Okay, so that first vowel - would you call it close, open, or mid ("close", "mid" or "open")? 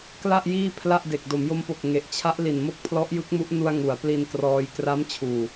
open